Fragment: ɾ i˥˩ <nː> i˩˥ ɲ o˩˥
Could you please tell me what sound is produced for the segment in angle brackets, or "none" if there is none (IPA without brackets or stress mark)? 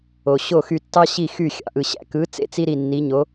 nː